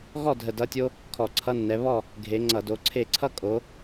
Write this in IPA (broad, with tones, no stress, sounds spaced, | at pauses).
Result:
ɣ ɔ˥˨ dʱ ə˧˩ d ʌ˧˥˧ tʲ o˥ | kʰ ɔ˧˩˧ ǀʰ ʌ˧˥˧ nː ɛ˨˦ β ɔ˥˨ | ɡʱ e˨˦ ŋ͡ǀ ʌ˧˩˧ d o˨˦ ǀʰ e˥˨ ǀʰ ʌ˥ kʼ o˨˦